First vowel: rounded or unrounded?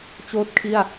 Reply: rounded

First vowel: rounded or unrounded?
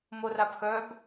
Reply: rounded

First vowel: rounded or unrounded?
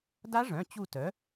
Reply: unrounded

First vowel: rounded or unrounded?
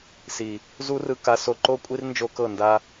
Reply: unrounded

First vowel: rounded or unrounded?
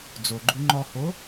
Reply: rounded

